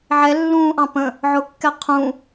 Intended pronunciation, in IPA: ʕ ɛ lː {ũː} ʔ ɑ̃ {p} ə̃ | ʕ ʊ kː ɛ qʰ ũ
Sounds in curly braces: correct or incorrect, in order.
correct, correct

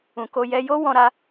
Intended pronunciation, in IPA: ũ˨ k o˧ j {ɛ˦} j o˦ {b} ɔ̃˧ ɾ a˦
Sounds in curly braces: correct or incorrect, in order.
incorrect: ɛ˧, incorrect: w

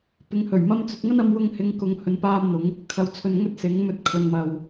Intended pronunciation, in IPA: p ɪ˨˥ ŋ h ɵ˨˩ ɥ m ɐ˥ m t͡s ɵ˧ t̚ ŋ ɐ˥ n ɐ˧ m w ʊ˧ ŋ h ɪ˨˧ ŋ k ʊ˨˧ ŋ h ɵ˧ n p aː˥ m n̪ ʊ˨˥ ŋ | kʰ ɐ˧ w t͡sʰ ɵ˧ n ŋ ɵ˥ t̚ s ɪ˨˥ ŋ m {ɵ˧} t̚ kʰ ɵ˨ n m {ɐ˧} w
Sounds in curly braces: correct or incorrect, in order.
correct, incorrect: ɐ˨

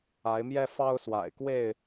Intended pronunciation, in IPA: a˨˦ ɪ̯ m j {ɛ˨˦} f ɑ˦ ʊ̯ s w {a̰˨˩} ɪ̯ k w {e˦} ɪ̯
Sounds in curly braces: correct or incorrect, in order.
incorrect: ɛ˦, correct, incorrect: e˥˨

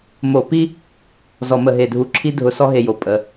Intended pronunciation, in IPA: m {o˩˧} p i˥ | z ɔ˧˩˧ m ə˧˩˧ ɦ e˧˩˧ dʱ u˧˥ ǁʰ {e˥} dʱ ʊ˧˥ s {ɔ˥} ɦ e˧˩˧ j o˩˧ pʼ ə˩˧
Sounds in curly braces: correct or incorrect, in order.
incorrect: o˧˩˧, incorrect: i˥, correct

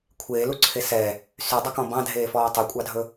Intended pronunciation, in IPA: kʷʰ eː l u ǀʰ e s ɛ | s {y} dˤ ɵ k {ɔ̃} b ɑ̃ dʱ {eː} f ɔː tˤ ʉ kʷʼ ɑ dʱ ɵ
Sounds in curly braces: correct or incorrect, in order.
correct, correct, correct

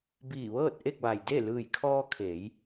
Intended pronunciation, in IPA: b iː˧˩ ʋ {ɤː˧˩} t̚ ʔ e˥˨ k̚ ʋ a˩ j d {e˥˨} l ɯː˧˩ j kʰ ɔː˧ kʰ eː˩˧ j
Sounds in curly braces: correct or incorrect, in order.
incorrect: ɤː˥˨, correct

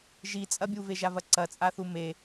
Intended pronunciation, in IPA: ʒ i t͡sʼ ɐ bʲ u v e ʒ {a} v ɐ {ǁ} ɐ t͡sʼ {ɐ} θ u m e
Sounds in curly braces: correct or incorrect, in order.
correct, incorrect: ǀ, incorrect: a

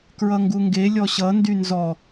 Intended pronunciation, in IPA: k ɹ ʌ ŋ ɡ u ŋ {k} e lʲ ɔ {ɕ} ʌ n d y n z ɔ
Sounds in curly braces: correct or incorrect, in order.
incorrect: ɡ, correct

